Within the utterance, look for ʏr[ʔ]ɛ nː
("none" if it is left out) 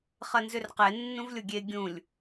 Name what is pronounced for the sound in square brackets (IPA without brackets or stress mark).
q